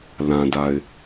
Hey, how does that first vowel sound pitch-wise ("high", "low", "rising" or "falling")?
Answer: low